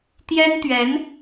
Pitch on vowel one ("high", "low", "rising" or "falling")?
high